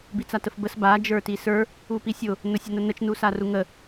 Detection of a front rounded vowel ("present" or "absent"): absent